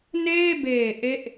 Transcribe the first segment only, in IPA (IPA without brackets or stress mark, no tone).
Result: n